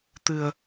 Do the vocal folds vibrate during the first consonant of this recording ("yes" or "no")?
no